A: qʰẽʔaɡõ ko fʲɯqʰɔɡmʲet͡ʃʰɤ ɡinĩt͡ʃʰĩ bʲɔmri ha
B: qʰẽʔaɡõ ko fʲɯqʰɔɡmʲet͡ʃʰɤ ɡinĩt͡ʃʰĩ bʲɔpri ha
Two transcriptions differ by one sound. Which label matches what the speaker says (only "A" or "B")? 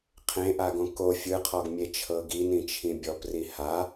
B